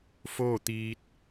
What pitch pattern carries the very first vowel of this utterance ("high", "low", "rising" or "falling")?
falling